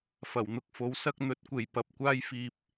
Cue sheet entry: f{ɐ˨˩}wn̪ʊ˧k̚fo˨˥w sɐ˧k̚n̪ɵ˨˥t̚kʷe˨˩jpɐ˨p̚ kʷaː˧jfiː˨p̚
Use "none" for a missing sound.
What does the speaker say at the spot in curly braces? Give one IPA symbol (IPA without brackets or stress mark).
ɐ˨˩